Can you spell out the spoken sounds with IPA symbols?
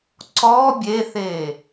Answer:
ǀ ɔ bʲ e θ e

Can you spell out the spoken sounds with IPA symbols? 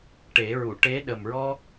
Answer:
ʈ e˨˩˦ ɹ u˨˩˨ ʈ e˧˥ ɗ ə˨˩ m ɹ ɔ˦˥ k̚

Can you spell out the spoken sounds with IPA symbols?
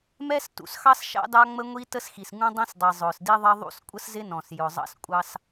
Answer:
m ɛ˥ s t ṵ˩ s x ɑ˥ s ʃ ɑ̰˥ d ɑ˥ ŋ͡m ə˥ ŋʷ i˥ t ə˥ s x i˩ s ŋ ũ˥ dˤ ĩ˥ s dˤ i˩ zˤ ʊː˩ s d i˥ ðˤ ʌ˥ ðˤ ṵ˥ s kʷʼ ə˥ s z ɪ˥ n ɔ̃˩ s j ʊ˩ zˤ ɑ̰˥ s kʷʼ ɑ˥ s

